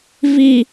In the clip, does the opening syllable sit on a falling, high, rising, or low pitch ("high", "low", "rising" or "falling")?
low